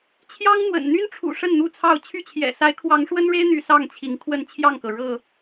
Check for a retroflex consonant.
present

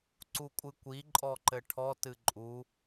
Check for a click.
present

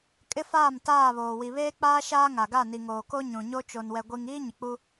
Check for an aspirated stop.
absent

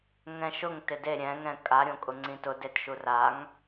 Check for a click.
present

